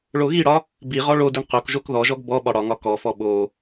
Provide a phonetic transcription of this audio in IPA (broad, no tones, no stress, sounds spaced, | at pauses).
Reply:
ɭ o ɣ i ɽ ɒ | b i ʁ ɔ ɭ o d i ɳ q o k ʒ o k ð ɔ ʒ ɔ ɡ b ɔ ɓ ɒ ɽ ɒ ŋ ɒ k ɔ f ɔ ɓ o